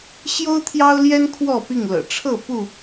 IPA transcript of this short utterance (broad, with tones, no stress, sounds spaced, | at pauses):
ɕ j o˦ ʊ̯ t̪ʰ j ɑ˦ ʊ̯ l j ɛ˦ n kʰ w ɔ˥˨ p i˥˨ ŋ l ɤ̰˨˩ ʈ͡ʂʰ ɤ˥˨ p u˥˨